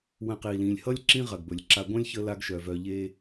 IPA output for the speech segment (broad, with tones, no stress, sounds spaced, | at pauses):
w ə̃˨ q i˩ l ĩ˩ lʲ h ʌ˥ lʲ ǁ ĩ˥ ʁ ɐ˩ ɡ b ɵ˩ lʲ ǁ a˨ ɡʷ ɐ̃˥ lʲ ç ə˦ l a˦ ɡ ʃ œ˩ v œ˨ ʎ e˦